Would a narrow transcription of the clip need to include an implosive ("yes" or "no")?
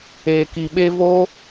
yes